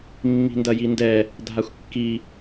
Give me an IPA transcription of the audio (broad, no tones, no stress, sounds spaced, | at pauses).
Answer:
mː i̤ n d ɐ j i n d ɛ | dʱ a xʷ kː i